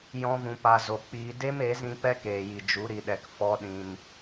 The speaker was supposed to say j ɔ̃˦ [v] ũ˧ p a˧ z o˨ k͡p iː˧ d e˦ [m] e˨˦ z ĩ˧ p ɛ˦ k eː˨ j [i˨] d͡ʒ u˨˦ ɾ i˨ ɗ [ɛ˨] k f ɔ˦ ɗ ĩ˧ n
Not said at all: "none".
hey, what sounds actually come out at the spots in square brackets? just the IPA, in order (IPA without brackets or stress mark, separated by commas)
v, m, i˨, ɛ˨